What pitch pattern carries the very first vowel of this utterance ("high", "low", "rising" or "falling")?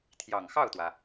low